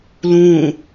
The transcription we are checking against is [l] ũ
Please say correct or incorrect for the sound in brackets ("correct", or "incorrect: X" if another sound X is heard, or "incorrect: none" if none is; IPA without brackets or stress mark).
correct